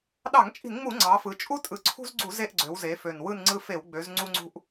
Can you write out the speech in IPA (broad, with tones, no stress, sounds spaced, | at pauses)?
ɗ ɑ˧˩˧ ŋ t͡ʃʼ i̤˧˩˧ n ŋ͡m u˧˩˧ ŋ͡ǀ ɑ˩˧ f ɯ˩˧ t͡ʃʼ u˦ tʼ ɯ˨˩ ǀʰ ṳ˦ z ɡ͡ǀ u˧˩˧ z e˦˨ ʔ ɡ͡ǀ ø˩˧ w z e˩˧ f ø˨˩ n w ɯ˦˨ n ŋ͡ǀ ɯ˦˨ f e˧˩˧ w ɡ͡b ø˩˧ z ŋ͡ǀ u˦ ŋ͡ǀ ṳ˦ ʔ